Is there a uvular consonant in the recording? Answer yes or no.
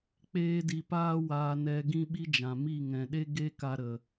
no